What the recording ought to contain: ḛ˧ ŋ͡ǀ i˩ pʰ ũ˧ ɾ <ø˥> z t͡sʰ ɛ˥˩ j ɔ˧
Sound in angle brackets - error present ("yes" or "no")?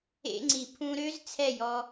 no